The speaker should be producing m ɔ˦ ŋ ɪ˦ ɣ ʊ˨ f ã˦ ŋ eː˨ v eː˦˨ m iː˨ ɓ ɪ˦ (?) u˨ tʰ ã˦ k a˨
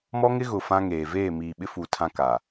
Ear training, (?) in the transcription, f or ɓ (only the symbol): f